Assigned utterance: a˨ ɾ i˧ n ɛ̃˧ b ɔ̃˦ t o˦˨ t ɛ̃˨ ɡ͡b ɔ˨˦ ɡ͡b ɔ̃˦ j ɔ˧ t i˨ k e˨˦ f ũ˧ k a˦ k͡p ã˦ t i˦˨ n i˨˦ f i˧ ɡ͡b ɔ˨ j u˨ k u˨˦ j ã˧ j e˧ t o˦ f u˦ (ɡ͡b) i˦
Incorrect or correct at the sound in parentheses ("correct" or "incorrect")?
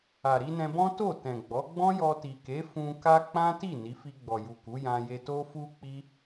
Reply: incorrect